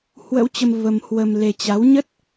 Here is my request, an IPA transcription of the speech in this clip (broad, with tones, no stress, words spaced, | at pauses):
hwə̰˧˥wt͡ɕə˧m və˧mhwə˧mle˧ t͡ɕa˨˦wɲə˦˥t̚